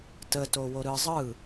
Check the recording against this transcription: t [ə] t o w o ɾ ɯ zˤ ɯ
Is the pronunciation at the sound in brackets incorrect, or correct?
correct